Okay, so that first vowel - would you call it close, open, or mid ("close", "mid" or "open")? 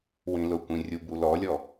close